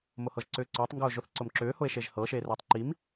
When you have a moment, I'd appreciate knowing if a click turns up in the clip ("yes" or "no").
yes